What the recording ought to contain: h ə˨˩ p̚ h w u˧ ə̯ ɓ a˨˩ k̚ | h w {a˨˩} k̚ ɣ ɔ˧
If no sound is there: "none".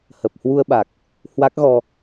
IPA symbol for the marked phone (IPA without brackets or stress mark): a˦˥